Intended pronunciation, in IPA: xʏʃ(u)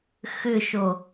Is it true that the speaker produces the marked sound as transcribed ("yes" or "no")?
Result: no